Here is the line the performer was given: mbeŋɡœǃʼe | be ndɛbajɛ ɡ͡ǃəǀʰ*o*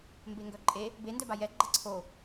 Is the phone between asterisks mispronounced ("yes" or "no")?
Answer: no